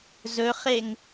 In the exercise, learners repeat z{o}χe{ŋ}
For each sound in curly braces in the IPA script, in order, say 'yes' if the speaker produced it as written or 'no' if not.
no, yes

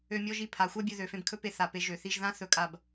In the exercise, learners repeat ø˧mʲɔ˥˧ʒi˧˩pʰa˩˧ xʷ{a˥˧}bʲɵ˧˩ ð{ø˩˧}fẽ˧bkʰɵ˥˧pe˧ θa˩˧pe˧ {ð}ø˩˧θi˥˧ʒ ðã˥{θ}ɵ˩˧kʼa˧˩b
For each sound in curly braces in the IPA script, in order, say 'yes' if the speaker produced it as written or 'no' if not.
yes, yes, no, yes

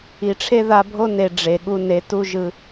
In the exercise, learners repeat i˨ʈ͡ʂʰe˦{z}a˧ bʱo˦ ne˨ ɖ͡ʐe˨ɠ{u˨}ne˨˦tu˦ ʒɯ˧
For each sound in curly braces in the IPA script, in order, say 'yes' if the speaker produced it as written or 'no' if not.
no, no

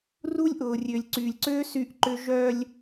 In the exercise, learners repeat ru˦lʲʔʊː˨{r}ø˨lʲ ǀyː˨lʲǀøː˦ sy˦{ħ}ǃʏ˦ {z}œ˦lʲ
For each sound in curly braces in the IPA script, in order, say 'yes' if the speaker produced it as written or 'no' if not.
no, no, no

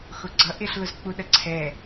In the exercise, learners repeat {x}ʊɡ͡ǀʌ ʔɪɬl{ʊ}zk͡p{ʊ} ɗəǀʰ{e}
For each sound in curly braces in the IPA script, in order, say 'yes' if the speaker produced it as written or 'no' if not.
yes, yes, no, no

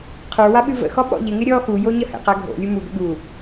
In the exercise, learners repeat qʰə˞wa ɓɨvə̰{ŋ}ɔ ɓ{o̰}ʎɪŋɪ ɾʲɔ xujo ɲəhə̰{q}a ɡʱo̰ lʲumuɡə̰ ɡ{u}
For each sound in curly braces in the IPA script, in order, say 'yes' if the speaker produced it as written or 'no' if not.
no, no, yes, yes

